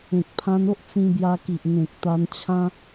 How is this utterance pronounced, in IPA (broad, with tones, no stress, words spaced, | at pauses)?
ẽ˨k̚pʰã˧no˦ʔ t͡sĩ˧bja˧ki˨ʔ ŋẽ˨k̚t̪a˧nt͡ɕʰã˦